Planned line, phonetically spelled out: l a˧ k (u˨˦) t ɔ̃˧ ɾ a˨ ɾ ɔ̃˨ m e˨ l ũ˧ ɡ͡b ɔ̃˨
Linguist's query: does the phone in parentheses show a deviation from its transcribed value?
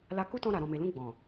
yes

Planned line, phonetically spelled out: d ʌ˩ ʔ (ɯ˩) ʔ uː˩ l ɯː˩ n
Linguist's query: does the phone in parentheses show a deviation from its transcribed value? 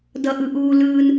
no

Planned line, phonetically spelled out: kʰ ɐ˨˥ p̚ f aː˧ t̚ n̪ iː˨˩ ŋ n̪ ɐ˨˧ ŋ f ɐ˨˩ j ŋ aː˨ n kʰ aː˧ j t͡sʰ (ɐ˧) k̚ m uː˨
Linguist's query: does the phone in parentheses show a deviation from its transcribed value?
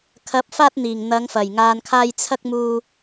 no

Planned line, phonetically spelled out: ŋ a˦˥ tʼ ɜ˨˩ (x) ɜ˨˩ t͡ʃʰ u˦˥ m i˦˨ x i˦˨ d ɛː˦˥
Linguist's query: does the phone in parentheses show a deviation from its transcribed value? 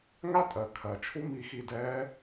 yes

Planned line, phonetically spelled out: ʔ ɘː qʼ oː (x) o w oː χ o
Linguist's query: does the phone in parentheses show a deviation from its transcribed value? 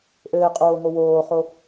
yes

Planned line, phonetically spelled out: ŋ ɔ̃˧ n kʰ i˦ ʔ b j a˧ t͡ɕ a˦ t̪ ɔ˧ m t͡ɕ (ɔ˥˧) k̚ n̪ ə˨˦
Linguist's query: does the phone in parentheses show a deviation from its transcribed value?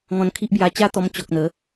yes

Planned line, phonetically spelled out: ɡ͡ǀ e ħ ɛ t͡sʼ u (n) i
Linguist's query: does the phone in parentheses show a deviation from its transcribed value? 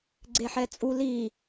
yes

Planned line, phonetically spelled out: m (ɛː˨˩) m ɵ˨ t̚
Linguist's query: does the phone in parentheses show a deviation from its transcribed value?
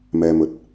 yes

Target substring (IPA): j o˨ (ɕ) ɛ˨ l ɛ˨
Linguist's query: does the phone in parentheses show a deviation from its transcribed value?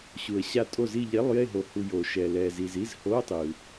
yes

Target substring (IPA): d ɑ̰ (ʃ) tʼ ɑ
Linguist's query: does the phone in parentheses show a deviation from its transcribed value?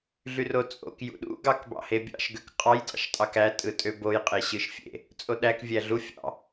no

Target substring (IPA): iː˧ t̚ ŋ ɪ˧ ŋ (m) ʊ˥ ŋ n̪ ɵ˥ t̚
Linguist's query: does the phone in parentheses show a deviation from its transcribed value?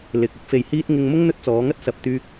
no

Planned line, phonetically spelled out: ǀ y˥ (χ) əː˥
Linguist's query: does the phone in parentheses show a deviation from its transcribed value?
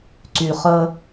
no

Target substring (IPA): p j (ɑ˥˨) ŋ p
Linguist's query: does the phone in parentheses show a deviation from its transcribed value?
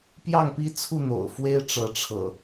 no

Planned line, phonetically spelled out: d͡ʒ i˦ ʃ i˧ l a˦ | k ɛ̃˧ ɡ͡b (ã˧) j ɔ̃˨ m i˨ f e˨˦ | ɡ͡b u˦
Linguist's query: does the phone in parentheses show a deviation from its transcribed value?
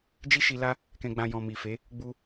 no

